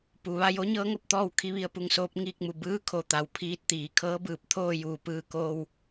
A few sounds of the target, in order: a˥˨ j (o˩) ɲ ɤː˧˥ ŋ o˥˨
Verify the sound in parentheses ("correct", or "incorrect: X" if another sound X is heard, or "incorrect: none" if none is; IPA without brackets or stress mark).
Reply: incorrect: o˧˥